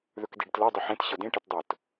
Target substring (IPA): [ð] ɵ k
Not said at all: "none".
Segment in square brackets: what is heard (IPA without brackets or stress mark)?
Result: ð